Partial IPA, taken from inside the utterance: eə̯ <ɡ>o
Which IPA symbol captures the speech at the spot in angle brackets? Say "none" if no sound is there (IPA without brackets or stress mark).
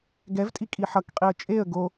ɡ